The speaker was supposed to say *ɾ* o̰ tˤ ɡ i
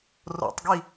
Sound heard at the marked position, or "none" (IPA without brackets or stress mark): r